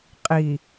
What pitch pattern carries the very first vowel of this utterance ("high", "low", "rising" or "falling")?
low